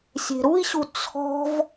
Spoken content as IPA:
sʲ e̤ ɾ u i̯ ɕ u t͡sʰ ɔ̤ v

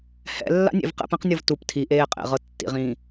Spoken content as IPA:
h ɛ̰ lː a̰ nʲ ḛ v q ɛ̰ p ɛ̃ q nʲ ɤ v t u p tʰ i ʔ eː qʼ ḛ ʁ ɤ tː ḭ ʁ ĩː

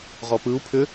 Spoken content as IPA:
ʁ ɔ p ɯ u̯ pʰ ʏ

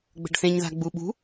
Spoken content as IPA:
ɡ͡b ə̤ ɖ θ ẽ ɲ ð a̤ ɡ͡b u ɓ ṳ

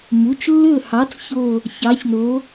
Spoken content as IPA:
m u˩˧˩ t͡ʃ lː ɵ˦˨ h ɑ˨˥ t͡s ç o˦˨ | ç ɑ˨˥ ç n o˨˥

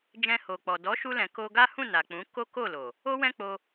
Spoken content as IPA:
d͡ʒ ɛ̃˧ h o˨ k͡p ɔ˨ d ɔ˨˦ ʃ u˧ l ɛ̃˨ k o˧ ɡ a˦ h ũ˦˨ n a˨ k͡p ũ˨˦ k o˦ k o˦˨ l o˨ | o˦ w ɛ̃˦ k͡p o˧

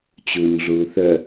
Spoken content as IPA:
t͡ɕ uː ɲ ɮ uː θ œ

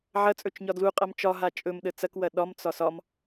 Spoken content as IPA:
ʕ ɐ t͡sʼ ɵ t͡ʃ ɲ ɒ d l u qʼ ɐ m t͡ʃ ɒ ɦ a t͡ʃʼ ɵ m ɗ ə t͡s ɐ k w ɐ ɗ ɒ m t͡s ɒ s ɒ m

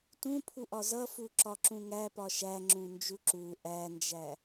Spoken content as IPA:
t ũ pʰ u ʔ ɒ z ʌ f u ǁ ɒ ǁ ũ ŋ æ p ɒ ʃ æ ŋ͡ǁ ũ n d͡ʒ u ǁ u ʔ æ n d͡ʒ æ

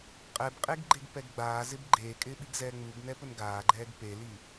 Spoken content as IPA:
qʼ ɛ b qʼ e ɡ ɡ͡ǃ e ɡ p ɛ ɡ ɡ͡b aː z ɪ b ɡ͡ǃ eː kʼ ɪː ɓ i ɡ z ɛː ŋ͡m u ɡ n ɛ p ʊ n ɡ aː ɡ͡ǃ ɛː ɡ p e l i

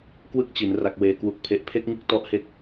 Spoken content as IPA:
k w ɯ˥˩ k̚ t͡ɕ i˩˦ n r a˨˩ k̚ w eː˨˩ k w u˨˩ k̚ pʰ e˨˩ ʔ pʰ e˥˩ k̚ ŋ ɯ˥˩ k̚ t ɔ˦˥ ʔ h e˥˩ k̚

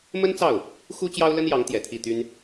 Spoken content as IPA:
m ə˥ n t͡s ɑ˥˩ ʊ̯ | x u˥ t͡ɕ j ɑ˥ ʊ̯ l ə˥ n j ɑ˧˥ ŋ t̪ j ɛ˨˩ t̪ʰ i˥˩ t̪ y˥ n

